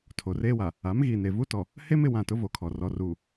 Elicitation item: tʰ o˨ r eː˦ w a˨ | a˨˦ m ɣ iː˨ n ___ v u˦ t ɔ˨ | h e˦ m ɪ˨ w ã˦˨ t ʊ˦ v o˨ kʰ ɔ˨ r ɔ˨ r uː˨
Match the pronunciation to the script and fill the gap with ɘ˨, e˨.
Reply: e˨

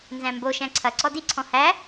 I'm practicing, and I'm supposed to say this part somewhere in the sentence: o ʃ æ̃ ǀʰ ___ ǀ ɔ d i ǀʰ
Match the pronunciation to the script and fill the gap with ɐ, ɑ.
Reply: ɐ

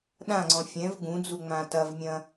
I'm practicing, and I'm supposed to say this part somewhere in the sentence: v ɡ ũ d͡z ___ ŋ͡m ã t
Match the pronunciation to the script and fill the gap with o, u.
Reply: u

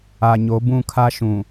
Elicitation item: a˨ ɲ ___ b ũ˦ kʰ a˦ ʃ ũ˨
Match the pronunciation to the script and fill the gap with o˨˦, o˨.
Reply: o˨˦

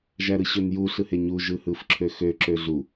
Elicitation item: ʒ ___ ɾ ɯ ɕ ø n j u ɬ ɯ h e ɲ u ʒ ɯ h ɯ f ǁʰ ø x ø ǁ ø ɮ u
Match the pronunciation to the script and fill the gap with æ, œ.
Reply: æ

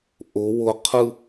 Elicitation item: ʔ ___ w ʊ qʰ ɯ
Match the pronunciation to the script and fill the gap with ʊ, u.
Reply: ʊ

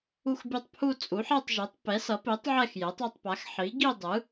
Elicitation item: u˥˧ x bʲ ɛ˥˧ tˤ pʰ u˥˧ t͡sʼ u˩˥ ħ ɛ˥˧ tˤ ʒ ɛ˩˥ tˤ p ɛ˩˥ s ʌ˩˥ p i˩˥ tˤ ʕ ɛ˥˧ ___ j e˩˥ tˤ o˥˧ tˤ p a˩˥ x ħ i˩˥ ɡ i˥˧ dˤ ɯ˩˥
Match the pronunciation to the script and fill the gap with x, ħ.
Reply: x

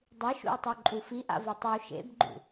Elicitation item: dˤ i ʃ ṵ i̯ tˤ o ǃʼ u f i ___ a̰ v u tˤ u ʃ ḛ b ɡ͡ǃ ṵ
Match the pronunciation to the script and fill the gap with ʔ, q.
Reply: ʔ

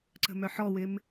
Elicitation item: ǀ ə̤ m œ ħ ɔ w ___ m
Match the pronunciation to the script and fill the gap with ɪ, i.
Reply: ɪ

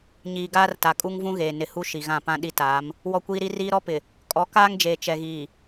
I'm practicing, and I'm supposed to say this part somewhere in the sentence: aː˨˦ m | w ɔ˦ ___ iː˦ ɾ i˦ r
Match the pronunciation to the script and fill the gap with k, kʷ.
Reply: kʷ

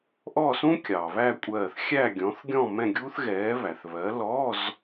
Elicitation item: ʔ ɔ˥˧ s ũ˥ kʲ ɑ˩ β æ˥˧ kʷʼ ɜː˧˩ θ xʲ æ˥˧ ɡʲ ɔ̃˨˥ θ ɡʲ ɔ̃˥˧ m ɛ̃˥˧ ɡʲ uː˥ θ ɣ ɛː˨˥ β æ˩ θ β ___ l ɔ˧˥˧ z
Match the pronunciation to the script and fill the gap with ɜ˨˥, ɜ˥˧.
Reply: ɜ˨˥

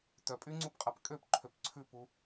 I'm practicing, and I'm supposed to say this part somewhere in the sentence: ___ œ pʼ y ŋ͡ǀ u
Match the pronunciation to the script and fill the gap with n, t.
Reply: t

